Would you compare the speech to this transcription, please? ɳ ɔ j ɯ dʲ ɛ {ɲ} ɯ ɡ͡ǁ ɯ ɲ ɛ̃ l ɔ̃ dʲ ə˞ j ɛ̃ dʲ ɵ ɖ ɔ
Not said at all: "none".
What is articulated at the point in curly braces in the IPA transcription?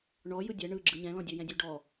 ɳ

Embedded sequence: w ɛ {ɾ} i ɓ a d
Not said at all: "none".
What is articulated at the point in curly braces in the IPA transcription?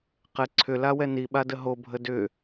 n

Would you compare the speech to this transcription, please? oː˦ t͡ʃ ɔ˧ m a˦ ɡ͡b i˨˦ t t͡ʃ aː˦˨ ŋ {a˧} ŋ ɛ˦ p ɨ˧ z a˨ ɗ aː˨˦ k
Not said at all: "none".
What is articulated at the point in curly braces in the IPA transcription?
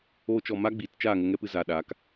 ə˧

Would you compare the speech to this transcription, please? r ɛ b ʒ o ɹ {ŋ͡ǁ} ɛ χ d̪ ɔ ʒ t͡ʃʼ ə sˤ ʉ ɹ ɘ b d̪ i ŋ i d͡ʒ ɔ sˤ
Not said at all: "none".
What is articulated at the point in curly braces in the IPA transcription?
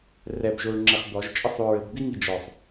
ŋ͡ǁ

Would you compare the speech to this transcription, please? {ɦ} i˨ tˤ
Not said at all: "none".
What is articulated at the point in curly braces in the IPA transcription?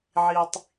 ʕ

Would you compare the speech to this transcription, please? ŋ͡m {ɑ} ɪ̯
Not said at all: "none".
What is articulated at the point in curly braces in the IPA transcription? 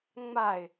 a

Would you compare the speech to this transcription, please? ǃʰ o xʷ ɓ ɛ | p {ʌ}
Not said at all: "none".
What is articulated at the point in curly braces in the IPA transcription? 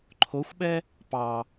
ɑ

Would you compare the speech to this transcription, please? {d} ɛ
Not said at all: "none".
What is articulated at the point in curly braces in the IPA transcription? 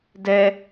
d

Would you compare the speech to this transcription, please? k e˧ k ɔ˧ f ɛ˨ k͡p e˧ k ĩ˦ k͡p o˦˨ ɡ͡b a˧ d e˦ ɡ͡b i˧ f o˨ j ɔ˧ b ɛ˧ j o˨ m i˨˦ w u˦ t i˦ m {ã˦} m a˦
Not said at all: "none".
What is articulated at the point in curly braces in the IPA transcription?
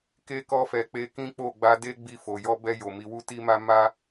a˦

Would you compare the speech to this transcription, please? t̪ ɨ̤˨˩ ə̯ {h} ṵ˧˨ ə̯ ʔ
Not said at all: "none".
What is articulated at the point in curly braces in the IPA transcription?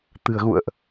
ɣ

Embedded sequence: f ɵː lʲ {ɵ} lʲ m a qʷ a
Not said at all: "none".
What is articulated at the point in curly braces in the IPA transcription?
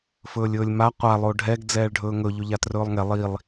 ɵː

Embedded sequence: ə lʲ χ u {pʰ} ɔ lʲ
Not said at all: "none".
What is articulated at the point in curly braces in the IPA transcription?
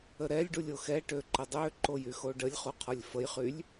qʰ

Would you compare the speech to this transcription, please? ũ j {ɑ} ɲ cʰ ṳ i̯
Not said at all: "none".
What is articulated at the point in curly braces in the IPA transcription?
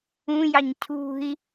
ɑ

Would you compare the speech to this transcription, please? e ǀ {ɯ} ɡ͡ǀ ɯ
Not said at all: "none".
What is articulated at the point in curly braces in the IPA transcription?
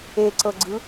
ɤ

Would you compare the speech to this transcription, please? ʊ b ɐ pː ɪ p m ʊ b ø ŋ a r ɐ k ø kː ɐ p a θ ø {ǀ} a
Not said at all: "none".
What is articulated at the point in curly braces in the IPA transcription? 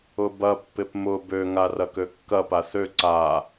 ǀ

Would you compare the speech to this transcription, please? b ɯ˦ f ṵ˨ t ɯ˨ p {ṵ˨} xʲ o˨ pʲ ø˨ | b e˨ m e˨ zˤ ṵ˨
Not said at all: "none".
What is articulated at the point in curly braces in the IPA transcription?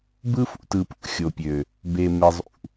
ṵ˨˦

